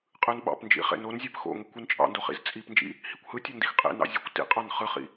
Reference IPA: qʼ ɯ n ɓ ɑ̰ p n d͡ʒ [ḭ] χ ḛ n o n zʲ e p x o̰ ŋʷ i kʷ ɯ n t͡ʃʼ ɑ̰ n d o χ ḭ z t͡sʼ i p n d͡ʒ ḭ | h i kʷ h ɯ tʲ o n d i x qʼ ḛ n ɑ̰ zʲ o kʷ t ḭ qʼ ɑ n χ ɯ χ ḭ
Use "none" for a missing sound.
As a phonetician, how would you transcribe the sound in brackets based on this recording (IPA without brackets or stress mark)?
ḭ